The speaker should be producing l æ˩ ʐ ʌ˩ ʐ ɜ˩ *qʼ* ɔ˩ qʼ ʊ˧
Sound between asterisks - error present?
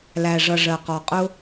yes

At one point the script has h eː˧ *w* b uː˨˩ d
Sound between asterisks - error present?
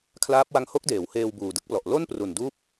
no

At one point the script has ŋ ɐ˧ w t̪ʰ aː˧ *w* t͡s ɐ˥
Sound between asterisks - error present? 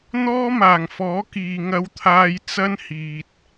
yes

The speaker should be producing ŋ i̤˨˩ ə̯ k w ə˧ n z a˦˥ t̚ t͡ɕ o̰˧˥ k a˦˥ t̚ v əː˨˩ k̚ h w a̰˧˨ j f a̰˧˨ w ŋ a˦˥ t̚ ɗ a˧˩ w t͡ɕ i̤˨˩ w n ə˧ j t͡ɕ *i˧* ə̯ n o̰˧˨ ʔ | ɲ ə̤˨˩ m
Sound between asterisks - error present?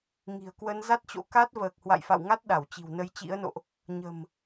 yes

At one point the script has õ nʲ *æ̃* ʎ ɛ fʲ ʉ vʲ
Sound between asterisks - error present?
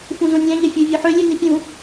no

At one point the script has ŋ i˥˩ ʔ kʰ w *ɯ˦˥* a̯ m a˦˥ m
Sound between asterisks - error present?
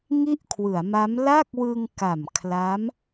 yes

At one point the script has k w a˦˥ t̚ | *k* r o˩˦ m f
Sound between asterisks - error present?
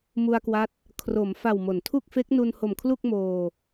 yes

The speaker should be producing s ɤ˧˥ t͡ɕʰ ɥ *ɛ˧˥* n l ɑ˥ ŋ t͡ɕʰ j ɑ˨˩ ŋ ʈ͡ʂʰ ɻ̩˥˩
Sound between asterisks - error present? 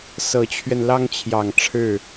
yes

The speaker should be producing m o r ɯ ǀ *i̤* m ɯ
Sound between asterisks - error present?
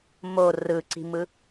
no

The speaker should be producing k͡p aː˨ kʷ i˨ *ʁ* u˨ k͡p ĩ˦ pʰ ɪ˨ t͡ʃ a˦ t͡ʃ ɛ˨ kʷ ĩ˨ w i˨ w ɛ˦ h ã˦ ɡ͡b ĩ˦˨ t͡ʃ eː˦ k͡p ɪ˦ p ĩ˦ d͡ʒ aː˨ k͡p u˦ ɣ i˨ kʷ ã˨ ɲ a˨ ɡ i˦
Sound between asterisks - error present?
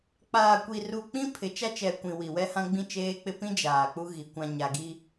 yes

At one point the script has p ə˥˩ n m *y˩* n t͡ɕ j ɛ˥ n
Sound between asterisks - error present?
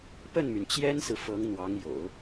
no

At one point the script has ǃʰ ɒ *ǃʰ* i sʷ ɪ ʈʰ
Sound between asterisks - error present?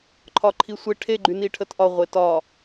no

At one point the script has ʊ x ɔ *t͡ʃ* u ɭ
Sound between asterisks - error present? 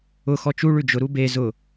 no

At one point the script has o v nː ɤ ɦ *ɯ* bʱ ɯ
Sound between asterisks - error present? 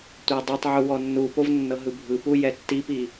no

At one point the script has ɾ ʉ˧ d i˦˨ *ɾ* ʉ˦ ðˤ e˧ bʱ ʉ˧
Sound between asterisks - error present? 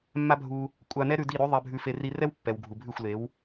no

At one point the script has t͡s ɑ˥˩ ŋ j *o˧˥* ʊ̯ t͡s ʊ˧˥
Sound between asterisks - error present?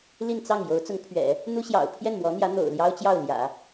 no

